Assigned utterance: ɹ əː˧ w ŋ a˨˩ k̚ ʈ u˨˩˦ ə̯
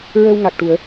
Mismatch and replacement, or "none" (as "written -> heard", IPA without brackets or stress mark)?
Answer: none